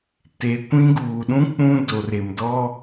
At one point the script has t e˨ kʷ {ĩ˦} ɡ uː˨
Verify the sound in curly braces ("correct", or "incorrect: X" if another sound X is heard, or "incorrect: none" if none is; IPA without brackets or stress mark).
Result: correct